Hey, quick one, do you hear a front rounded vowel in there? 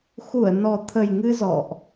no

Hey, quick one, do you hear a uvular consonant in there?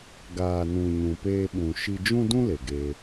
no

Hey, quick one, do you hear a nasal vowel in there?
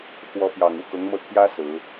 no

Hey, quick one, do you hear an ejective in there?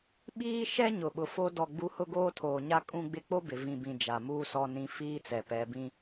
yes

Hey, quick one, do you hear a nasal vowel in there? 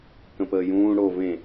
yes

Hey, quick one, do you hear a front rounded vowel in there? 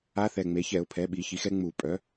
yes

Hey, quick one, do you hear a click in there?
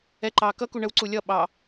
yes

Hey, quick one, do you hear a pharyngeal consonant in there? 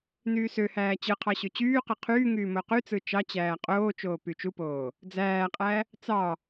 no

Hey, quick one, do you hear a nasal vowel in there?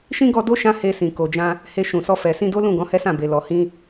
yes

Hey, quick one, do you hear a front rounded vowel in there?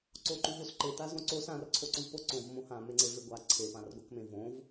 no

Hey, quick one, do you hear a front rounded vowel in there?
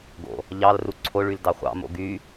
yes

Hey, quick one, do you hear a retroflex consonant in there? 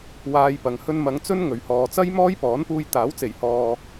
no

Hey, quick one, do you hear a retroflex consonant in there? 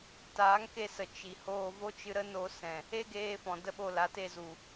no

